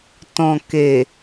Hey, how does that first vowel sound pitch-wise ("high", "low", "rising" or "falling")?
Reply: low